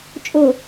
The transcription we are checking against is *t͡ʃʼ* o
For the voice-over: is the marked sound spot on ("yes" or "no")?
yes